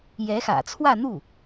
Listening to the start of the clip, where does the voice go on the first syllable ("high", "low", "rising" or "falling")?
rising